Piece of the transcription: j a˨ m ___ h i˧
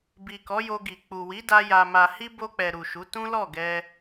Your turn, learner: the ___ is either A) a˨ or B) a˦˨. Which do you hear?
A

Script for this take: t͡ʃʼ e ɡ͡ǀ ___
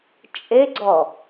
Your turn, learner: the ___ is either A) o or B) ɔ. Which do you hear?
B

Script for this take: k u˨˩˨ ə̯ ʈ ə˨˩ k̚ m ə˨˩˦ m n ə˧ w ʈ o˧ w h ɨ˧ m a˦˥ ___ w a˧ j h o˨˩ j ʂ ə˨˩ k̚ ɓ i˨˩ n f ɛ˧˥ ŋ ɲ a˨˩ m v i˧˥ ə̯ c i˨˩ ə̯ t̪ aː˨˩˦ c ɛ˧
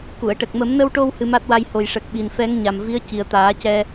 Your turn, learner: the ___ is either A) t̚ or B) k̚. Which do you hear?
A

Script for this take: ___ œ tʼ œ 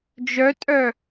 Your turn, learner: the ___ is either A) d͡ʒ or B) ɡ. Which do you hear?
A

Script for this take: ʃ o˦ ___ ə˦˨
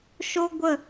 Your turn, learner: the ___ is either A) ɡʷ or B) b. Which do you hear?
A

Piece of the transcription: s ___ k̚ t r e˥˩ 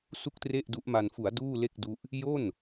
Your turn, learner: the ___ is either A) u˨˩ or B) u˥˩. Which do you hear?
B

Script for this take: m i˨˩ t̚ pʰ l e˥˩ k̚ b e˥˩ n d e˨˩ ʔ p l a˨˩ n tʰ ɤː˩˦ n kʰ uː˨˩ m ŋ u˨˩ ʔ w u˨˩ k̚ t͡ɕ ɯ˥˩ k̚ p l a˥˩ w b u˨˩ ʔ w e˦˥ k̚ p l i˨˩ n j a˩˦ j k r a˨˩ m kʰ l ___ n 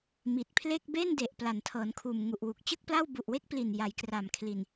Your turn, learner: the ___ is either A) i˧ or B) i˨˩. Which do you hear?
B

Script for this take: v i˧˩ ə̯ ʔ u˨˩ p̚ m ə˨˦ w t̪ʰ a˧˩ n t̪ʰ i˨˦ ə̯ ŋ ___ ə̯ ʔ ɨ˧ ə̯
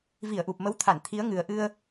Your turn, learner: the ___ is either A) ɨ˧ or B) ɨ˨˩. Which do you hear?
B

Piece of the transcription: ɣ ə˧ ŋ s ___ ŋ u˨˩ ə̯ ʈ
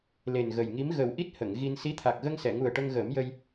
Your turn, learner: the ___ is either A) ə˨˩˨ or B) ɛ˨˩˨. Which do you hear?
B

